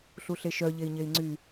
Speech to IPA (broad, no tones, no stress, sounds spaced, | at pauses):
ɬ u ɬ e ʃ œ ʎ e i̯ ɲ e i̯ ŋ͡ǀ y